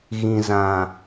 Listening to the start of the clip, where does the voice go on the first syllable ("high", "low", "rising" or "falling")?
low